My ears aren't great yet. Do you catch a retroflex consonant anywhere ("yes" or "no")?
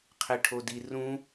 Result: yes